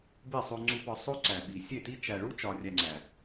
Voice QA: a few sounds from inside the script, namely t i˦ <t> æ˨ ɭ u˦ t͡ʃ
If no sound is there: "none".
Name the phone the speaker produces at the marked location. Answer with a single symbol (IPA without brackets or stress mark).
t͡ʃ